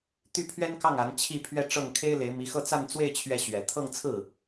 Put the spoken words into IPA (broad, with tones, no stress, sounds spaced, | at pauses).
t̪ y˥˩ pʰ ɥ ɛ˥ n k ɑ˥˩ ŋ a˧˥ n t͡ɕʰ i˥˧ pʰ ɥ ɛ˥˧ ʈ͡ʂ ɤ˥˩ ŋ kʰ e˥ ɪ̯ l e˧˥ ɪ̯ m i˧˥ x ɤ˥˧ t͡s a˥˧ n t͡s w e˥˧ ɪ̯ t͡ɕʰ ɥ ɛ˥˩ ɕ ɥ ɛ˨˩ t̪ʰ ɤ˥˧ ŋ t͡sʰ ɹ̩˥˩